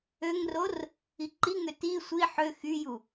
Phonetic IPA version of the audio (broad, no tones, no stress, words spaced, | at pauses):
øŋror | iǃiŋø ti sʷi ħø xyju